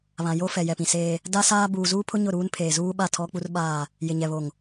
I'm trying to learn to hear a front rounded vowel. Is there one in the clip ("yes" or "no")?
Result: no